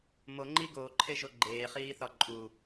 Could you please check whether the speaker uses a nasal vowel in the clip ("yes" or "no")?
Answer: no